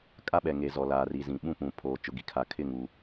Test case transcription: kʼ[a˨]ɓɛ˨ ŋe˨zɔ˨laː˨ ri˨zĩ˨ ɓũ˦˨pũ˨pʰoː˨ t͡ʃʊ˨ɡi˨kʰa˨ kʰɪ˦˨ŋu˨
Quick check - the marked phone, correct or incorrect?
incorrect: a˦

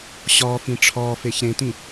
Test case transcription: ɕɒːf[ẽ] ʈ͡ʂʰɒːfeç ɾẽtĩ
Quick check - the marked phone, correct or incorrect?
incorrect: ĩ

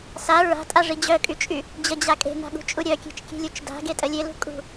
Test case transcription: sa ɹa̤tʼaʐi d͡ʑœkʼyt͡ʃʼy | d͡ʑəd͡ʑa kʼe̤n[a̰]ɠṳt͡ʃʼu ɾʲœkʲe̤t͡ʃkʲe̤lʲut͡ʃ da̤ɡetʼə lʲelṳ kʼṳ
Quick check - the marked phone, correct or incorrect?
incorrect: a̤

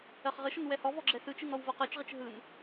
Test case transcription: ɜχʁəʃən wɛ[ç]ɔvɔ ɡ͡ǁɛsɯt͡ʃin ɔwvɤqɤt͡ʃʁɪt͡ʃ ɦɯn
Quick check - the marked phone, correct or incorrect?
incorrect: h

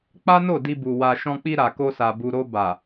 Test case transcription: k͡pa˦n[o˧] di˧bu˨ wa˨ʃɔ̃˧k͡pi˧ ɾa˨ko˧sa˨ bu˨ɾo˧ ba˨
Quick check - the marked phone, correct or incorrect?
incorrect: o˦˨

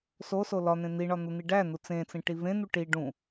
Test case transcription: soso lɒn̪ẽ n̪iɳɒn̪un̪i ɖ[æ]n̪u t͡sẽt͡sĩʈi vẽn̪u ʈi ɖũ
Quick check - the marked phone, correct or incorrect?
correct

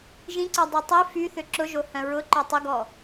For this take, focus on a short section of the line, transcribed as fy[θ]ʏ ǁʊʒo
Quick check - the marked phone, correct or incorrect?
correct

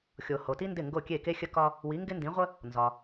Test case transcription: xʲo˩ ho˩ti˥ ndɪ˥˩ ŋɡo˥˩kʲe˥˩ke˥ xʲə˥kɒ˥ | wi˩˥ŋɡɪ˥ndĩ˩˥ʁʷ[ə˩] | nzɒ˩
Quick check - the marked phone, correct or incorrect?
incorrect: ə˥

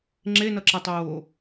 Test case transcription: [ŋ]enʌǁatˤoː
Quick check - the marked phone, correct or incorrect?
incorrect: ŋ͡ǁ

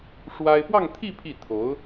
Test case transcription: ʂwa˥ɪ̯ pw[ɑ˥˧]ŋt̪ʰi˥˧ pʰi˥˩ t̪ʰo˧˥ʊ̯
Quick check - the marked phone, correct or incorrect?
correct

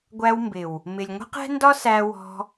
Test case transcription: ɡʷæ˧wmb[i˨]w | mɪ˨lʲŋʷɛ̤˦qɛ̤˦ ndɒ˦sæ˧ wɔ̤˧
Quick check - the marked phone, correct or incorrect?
incorrect: ɪ˨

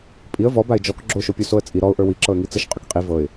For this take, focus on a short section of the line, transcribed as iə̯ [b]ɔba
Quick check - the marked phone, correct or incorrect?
incorrect: v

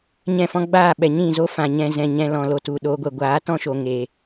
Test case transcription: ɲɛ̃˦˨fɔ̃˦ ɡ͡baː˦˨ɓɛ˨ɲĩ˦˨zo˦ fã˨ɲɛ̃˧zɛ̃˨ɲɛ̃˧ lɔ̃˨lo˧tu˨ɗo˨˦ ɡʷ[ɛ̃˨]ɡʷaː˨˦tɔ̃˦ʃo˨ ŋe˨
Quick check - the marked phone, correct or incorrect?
incorrect: ɛ˨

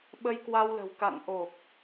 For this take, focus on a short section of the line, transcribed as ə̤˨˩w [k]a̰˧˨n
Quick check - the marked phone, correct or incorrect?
correct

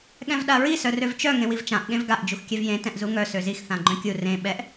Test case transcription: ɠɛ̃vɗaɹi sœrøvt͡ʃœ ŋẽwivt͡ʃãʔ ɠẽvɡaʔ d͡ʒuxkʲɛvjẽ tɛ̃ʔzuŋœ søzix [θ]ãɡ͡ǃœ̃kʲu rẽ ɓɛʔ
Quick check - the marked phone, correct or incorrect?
correct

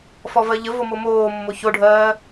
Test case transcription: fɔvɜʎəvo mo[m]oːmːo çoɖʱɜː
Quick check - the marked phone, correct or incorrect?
correct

